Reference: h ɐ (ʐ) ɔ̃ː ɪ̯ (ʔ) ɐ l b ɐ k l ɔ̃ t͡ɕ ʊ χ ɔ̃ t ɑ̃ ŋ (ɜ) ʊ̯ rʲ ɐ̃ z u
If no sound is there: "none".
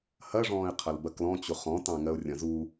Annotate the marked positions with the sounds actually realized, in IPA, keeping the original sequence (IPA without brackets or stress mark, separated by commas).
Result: ʐ, qʰ, ɜ